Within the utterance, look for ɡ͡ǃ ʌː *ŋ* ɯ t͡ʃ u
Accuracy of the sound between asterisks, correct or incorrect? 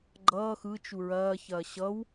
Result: incorrect